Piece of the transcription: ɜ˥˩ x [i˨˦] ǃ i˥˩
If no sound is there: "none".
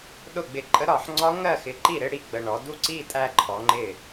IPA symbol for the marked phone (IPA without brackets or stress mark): ɪ˨˦